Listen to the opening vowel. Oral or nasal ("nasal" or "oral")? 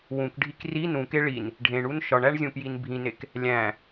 nasal